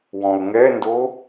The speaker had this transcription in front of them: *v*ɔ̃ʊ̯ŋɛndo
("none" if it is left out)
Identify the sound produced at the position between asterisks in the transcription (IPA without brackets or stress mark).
w